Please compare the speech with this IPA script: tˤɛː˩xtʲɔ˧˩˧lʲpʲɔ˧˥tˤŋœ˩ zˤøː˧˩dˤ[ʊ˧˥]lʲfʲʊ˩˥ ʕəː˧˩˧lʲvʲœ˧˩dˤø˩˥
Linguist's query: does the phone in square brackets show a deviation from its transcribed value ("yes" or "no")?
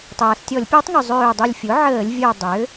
yes